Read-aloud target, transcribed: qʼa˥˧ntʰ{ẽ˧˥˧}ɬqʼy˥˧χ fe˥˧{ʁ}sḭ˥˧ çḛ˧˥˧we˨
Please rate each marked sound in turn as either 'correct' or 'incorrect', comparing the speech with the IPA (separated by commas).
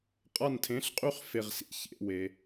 correct, correct